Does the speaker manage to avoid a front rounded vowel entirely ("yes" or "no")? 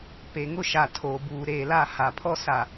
yes